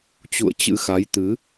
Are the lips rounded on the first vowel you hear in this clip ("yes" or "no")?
yes